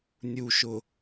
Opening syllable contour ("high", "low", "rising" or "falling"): low